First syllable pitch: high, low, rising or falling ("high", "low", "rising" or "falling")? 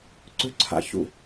falling